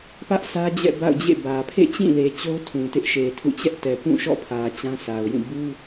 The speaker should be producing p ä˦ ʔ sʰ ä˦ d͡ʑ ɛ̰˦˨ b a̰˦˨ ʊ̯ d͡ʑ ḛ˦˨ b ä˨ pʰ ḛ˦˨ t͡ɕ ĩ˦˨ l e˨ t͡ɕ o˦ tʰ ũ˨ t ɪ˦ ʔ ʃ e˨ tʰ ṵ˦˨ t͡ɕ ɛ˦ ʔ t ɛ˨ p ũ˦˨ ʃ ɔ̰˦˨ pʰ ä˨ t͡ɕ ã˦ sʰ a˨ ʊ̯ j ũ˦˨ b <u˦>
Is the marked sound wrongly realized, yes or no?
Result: no